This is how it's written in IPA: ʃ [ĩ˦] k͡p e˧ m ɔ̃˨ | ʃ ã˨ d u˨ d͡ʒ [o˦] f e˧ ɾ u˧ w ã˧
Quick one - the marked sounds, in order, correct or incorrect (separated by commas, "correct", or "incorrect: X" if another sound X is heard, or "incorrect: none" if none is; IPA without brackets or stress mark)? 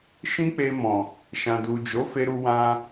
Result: correct, incorrect: o˨˦